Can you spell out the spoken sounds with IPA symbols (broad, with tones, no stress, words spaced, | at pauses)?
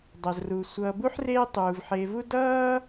dˤʌ˩zru˩ sʷʌː˨bu˥ħreː˦ tˤuː˩vħeː˨vu˥ dʌː˥